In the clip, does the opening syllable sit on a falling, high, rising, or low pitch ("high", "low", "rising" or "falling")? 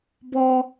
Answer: high